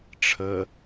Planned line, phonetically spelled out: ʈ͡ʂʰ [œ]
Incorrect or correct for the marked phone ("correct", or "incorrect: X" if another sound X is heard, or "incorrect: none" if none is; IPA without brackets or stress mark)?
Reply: incorrect: ə